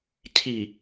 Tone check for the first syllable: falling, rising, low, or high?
low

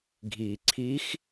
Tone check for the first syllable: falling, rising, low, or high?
low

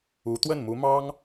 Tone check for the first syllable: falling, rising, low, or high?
rising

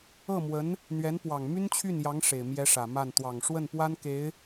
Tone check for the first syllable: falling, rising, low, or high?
falling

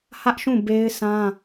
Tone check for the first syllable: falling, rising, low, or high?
high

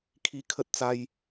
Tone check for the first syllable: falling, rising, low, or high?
high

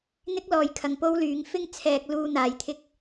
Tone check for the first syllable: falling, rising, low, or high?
high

